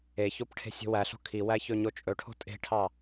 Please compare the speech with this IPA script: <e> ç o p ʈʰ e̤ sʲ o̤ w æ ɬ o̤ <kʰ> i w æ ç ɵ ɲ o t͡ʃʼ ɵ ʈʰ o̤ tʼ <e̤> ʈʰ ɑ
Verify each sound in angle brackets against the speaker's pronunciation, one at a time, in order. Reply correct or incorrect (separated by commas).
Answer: correct, correct, correct